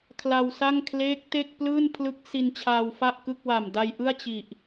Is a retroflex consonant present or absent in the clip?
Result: absent